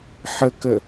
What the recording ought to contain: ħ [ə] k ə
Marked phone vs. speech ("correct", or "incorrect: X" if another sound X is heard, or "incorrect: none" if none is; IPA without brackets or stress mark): correct